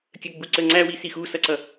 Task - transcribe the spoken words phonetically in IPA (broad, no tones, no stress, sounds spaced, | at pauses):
kʲ ə ɡ͡b u ǀ ə ŋ͡ǀ æ w i s i x u s ʌ ǀ ʌ